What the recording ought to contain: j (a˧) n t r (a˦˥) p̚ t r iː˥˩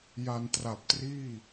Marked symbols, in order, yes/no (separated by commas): yes, no